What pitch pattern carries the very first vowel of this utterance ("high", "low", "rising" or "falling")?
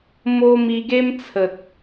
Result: high